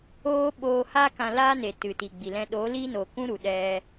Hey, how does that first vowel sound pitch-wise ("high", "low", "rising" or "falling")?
high